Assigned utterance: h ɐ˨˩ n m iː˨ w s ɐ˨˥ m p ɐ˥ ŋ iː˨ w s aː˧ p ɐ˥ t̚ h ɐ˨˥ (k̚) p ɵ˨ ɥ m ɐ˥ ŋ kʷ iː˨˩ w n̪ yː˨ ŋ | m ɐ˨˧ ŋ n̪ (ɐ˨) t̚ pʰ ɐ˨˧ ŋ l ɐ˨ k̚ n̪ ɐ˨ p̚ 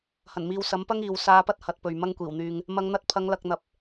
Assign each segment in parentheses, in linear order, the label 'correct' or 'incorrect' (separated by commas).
incorrect, incorrect